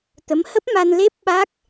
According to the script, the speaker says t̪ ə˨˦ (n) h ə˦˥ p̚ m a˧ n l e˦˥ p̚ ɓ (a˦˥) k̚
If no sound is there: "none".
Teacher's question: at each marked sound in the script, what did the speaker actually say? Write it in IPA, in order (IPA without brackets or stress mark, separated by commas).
m, a˦˥